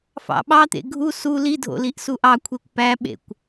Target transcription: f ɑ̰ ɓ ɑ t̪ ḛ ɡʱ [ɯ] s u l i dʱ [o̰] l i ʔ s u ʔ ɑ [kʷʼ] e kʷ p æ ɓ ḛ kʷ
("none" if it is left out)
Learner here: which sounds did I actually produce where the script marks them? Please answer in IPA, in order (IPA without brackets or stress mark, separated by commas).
u, o̰, kʷʰ